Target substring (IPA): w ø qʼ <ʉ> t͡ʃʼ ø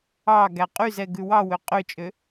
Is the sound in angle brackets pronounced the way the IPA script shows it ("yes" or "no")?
no